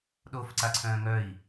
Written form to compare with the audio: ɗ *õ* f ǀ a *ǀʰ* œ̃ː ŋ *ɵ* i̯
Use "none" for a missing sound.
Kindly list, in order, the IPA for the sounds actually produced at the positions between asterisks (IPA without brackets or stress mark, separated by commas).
o, ǀʰ, œ